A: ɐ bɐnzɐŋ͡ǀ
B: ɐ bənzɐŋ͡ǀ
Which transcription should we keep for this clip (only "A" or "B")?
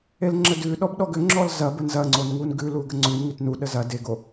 B